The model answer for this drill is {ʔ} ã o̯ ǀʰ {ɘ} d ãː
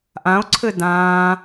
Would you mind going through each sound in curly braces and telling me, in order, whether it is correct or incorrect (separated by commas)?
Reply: correct, correct